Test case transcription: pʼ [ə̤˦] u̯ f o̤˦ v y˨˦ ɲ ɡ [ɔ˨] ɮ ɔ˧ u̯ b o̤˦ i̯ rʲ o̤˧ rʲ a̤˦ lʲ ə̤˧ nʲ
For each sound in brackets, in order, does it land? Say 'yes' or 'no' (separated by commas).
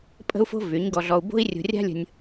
yes, no